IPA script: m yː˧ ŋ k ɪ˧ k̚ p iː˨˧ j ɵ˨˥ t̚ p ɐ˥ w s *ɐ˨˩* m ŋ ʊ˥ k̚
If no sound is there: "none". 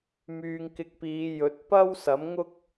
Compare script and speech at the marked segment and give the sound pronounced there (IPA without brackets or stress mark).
ɐ˨˥